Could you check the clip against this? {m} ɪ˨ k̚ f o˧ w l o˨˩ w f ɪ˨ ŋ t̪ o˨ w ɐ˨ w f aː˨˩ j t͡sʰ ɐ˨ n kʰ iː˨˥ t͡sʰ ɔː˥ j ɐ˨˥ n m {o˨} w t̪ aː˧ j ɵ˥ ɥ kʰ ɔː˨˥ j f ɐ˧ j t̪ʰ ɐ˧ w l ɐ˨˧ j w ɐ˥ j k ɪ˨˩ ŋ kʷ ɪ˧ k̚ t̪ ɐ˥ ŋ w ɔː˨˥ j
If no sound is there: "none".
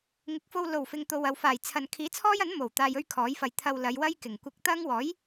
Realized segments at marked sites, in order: ŋ, o˨˩

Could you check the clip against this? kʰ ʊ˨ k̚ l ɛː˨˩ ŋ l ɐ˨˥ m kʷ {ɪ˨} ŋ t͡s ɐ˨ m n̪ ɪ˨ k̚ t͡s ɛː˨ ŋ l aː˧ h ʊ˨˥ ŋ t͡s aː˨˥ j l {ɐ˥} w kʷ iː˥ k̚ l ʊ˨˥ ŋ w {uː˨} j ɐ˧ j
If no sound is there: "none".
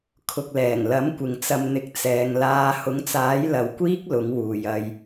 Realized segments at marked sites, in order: ɪ˨, ɐ˨˧, uː˨

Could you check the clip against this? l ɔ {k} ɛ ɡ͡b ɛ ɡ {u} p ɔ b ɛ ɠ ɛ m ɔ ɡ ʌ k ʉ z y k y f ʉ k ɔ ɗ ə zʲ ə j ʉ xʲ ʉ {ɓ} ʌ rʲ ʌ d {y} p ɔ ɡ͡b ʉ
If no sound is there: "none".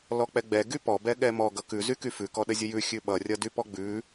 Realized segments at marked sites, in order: k͡p, y, ɓ, y

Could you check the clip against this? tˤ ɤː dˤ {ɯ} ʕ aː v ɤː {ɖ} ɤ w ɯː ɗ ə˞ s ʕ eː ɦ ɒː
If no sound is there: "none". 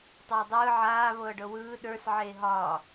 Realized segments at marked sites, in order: ɯː, ɖ

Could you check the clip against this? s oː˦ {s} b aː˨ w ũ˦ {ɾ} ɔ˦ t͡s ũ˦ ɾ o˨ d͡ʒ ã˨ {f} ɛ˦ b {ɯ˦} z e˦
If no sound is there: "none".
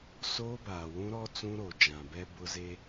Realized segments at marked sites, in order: none, ɾ, b, ʊ˦

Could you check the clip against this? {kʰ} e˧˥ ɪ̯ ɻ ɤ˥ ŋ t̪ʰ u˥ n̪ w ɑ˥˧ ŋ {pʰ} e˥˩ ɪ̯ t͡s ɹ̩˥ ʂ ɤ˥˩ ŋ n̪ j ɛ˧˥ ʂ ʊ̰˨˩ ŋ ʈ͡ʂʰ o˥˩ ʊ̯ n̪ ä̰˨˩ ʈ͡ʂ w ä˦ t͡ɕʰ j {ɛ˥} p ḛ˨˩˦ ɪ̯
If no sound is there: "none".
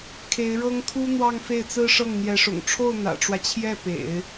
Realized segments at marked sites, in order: kʰ, f, ɛ˥˩

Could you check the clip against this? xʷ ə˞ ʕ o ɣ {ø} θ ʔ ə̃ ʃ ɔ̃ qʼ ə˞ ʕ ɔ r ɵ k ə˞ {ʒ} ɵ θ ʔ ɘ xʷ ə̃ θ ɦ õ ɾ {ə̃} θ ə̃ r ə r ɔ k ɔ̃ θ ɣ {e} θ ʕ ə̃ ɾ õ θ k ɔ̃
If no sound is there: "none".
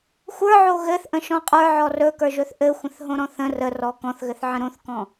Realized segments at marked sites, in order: ɘ, ʒ, ɔ̃, ɘ

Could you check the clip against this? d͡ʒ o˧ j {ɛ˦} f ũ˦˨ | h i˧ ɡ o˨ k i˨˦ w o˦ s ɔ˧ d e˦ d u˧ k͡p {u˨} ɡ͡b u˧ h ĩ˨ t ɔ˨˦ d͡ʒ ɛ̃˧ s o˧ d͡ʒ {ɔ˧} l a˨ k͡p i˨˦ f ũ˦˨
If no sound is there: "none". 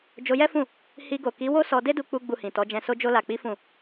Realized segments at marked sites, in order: ɛ˦, u˧, o˧

